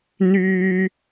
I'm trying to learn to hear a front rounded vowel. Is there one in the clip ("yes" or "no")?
yes